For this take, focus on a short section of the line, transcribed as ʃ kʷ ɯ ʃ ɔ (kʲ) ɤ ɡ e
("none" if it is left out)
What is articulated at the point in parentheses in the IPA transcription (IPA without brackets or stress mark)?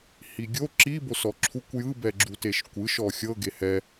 xʲ